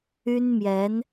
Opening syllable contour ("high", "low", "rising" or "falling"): high